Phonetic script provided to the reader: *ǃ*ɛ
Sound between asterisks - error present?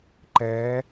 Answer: no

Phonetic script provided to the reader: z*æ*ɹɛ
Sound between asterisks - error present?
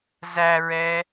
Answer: no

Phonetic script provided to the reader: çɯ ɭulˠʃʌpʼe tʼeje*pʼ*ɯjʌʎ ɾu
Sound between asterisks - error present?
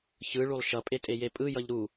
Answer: no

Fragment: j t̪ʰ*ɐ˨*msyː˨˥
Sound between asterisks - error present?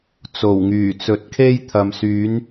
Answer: no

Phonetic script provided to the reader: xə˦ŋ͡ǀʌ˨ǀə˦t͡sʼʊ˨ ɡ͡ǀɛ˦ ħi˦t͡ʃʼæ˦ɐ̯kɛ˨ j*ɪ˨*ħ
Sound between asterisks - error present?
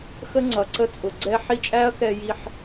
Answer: yes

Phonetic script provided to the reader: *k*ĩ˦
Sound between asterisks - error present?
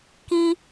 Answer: no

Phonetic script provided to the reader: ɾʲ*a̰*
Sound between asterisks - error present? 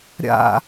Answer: no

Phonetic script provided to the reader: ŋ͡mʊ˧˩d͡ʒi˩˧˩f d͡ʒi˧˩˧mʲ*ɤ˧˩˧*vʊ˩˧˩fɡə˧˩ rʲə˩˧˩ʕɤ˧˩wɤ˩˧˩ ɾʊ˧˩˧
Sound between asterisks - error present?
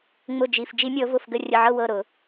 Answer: no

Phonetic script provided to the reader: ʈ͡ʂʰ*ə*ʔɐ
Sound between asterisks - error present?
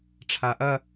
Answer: yes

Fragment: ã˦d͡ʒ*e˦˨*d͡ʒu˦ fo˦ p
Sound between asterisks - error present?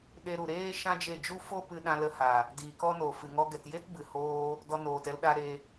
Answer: no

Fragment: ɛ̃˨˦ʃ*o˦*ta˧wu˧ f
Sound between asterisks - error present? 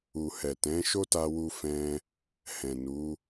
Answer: no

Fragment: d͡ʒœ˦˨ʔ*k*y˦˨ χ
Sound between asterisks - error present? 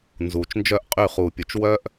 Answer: yes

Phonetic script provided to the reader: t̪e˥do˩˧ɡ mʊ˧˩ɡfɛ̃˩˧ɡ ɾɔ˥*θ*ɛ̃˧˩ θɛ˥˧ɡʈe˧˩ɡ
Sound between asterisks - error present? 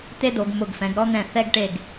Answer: yes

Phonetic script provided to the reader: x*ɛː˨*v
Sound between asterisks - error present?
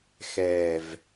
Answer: no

